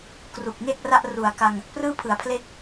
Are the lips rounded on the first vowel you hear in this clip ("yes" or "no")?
yes